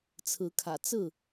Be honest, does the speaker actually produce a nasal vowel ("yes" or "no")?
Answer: no